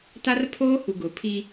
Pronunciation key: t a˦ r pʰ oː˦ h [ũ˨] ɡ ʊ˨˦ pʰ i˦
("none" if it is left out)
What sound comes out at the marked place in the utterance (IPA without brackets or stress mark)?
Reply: u˨